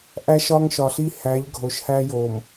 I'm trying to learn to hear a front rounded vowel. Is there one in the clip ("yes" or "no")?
no